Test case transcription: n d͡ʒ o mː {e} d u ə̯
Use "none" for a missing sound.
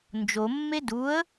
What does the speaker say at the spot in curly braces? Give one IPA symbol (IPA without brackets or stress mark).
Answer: e